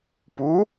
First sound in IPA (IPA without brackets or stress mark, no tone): p